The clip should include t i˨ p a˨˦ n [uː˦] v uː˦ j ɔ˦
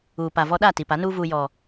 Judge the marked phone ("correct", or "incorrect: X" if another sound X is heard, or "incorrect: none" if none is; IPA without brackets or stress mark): correct